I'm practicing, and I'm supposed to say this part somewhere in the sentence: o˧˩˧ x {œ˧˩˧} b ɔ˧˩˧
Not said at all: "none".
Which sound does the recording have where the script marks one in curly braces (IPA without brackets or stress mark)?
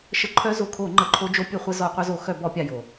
œ˧˩˧